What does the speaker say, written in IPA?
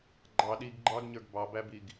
ɡ͡ǃ ɑ ɗ i ɡ ɡ͡ǃ ɑ ɡ ɲ ə˞ ɡ b ɑ b æ b i ɡ

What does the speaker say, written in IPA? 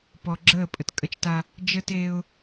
p ɔ˨ ɡ͡ǁ əː˦˨ pʼ ə˨ t kʼ ə˦ t͡ʃ t a˦ | d͡ʒ ə˦ t eː˦ ʊ̯

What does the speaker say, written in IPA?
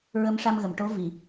ɹ ə˧˥ m ʂ a˧ m ɣ ə˨˩˨ m ʈ o˧˥ v i˨˩˨

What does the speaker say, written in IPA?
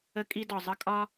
ə˦ kʼ i˦ d ɒ˨ zˤ ə˦ kʼ ɒ˦

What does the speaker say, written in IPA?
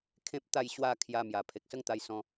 kʰ ẽ˦ p̚ t̪ a˥˧ j ɕ w a˥˧ kʰ j a˧ m j a˨˩ pʰ e˨ k̚ s ə˦ ŋ t̪ a˧ j s ɔ̃˧

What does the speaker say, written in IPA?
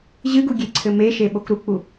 ʑ ɨ ɡ u ɡʲ e ǀʰ ɘ m e ʃ e ɓ o k ɾ u k͡p u

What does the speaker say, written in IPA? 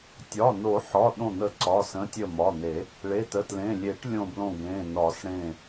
tʲ ɒ˩˧˩ n o˨˩˦ ħ ɒ˩˧˩ ɗ õ˧˩ n̪ ə˧˩ ǀ ɒ˩˧˩ s ə̃˩˧˩ tʲ ə˧˩ m ɒ˩˧˩ n̪ e˨˩˦ | ɭ e˩˧˩ t ə˩˧˩ t l ẽ˩˧˩ lʲ e˨˩˦ ʈ lʲ õ˧˩ b l õ˧˩ ɡ ẽ˩˧˩ n ɒ˨˩˦ s ɽ ẽ˧˩

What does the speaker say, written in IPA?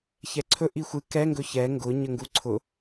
ç ɛ ǀʰ ɵ ʔ i xʷ ɨ k ɛ ŋ ɡ ɵ ç ɛ ŋ ɡ ʊ ɲ ə ŋ ɡ u ǀʰ ʊ

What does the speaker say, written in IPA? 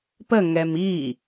p ə ŋ ɛ m i

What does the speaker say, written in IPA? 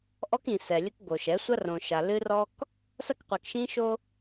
ʔ ɔ˦ k ĩ˨ s ɛ˨ lʲ ɘ˦ k ɡ o˨ ʃ ɛ˨˦ sʷ ɐ˦ r õ˨ ʃ a˨ l ɨ˦ r ɔ˦ k | s ɐ˦ k qʷ ɛ˨ k ʃ ĩ˦ ʃ o˦

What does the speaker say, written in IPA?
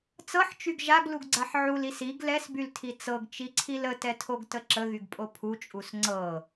t͡s ɤ ħ t͡ʃ y ɡ ʒ a ɡ l u ɡ ɡ͡ǀ a ħ ʕ u l i s i ɡ l ɛ s b y l tʰ i t͡s ɤ ɡ t͡ʃ i ǀʰ i l ə t ɛ tʰ o ɡ t ə ǁ ə ɣ y ɡ pʼ o pʰ u t͡ʃʼ u s ŋ͡ǀ ɤ

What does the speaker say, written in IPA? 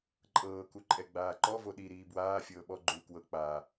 ǃʼ ɤː k u ǃʼ ɛ ɡ͡b aː ǃ ɔ v o ɗ i ɾ iː b w aː fʲ ɤː ɓ ɔ ɡ͡ǃ uː k w ɤ k͡p aː

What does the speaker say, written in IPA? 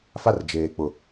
f a˦ r d͡ʒ eː˨ k͡p ʊ˨

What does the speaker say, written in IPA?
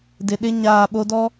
d ɪ˨ ɗ ɪ˦ ɲ aː˦˨ ɓ o˦ d ɔ˦

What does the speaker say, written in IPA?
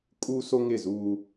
kʼ u˦ s o˦ ŋ ɪ˦˨ z uː˦

